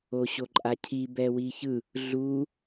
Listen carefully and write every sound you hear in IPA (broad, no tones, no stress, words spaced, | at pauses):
oɕoǃʼacʰi bɛwiçɯ | ɮu